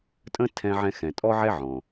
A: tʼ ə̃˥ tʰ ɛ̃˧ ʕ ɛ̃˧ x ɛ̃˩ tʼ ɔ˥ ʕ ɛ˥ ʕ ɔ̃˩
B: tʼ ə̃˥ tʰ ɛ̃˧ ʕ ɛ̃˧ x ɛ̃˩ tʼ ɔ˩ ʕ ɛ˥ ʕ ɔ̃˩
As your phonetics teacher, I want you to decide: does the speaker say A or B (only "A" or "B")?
A